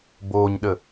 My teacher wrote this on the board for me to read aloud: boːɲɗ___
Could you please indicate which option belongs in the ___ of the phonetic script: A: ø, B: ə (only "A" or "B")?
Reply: B